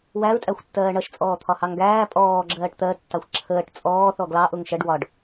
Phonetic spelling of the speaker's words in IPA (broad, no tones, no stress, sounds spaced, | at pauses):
w æ ɹ tʼ æ xʷ tː ɜː ɳ ʌ ʃ t͡sʼ ɔː t̪ʰ ɒ h ɑ ŋ ɡ æː pʼ ɔː ɡ͡ǁ ɜː ʈ t̪ ɜ tː ɑ xʷ ǁʰ əː ʈ t͡sʼ ɔː θ ɔ ɡ l ɑ ʔ ʊ ŋ ʃ ɜ ɖ w ɒ ɖ